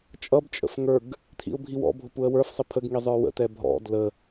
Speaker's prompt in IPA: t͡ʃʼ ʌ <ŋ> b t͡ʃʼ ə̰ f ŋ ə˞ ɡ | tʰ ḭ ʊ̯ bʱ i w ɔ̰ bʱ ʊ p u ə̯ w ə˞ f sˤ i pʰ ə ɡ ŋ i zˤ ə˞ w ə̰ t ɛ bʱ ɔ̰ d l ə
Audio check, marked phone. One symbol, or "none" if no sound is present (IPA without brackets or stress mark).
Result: none